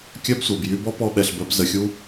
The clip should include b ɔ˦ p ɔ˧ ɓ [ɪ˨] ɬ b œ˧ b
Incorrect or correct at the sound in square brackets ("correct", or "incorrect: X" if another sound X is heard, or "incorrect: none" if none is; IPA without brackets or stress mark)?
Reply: incorrect: ɛ˨